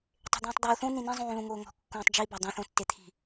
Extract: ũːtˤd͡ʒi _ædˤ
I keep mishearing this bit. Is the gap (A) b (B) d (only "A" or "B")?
A